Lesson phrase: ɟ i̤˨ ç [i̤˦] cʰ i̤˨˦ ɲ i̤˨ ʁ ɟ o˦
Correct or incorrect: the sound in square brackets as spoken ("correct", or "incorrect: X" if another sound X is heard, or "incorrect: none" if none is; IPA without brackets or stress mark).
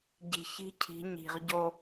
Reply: correct